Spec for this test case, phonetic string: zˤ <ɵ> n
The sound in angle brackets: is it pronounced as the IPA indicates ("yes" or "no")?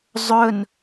yes